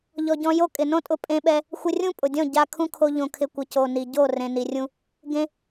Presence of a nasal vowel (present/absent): present